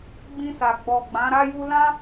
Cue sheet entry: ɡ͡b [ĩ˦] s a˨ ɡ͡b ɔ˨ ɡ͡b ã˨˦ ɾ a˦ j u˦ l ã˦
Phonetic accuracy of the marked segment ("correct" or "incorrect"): incorrect